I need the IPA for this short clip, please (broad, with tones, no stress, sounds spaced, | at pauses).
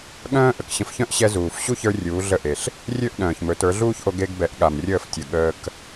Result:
ɠ œ̃ː˥ ʔ ə˩ k ɕ ə̃˧ f ç œ̃˥ ʔ ɕ ɛ˧ z uː˩ f ɕ u˥˩ ç ə˞˧ rʲ uː˩˥ ɮ ə˥˩ ʔ e˩ ɬ | rʲ ø˥˩ ʔ ɗ œ̃ː˩ ç m ɵ˩˥ t ə˞˩˥ ɮ uː˥ ç ʔ o˧ ɡ e˧ ɡ b ɛ˩˥ ʔ ɠ a˩ m rʲ əː˥˩ f tʲ ə˩ ɠ əː˧ k